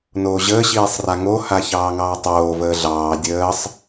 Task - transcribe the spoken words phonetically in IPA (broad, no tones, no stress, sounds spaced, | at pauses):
n oː ʑ əː ɕ iː sˤ r a ŋ o h a ç ɑː ŋ ɑː tˤ oː v əː ɮ ɑː dʲ əː sˤ